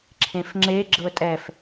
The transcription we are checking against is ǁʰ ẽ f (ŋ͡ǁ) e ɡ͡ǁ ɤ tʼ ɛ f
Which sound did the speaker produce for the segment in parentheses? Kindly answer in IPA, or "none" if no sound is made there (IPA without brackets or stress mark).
ŋ͡ǁ